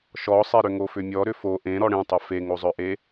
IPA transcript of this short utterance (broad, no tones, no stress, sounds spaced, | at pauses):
ʃ ɔ sˤ e ɾ ʏ ŋ o f ʏ mʲ ɔ ɾ ʏ f o ʔ ẽ ɾ ɔ ɽ ẽ tˤ œ f e ŋ o zˤ œ ʔ e